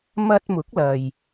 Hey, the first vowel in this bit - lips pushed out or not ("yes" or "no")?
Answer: no